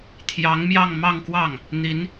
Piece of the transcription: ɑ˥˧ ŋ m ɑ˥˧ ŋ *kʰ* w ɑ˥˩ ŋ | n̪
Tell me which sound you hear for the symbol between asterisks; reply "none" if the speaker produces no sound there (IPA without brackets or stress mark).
k